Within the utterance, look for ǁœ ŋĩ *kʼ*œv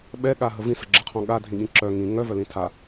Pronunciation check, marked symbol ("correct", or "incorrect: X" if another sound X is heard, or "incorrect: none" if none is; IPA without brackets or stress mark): incorrect: ŋ